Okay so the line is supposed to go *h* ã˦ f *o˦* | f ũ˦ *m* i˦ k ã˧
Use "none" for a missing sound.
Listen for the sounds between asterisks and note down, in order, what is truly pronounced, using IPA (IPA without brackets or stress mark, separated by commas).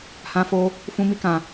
h, o˦, m